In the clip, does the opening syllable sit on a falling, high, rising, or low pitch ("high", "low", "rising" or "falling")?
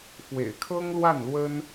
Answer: low